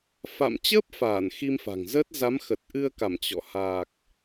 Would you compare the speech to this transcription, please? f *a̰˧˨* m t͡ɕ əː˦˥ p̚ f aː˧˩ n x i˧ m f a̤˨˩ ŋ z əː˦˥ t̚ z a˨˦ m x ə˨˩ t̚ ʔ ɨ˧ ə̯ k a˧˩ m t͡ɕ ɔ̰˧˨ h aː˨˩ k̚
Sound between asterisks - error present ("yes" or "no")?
no